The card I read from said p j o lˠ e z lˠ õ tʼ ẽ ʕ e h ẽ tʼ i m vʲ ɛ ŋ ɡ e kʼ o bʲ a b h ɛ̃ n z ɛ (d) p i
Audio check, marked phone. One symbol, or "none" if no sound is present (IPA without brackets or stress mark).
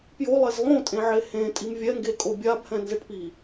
ʈ